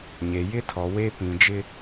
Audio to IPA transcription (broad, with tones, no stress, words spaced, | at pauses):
ɲe˨jɪ˦tʰɔ˨ we˦pĩ˨ d͡ʒɪ˦